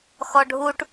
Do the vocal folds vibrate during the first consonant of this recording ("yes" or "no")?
no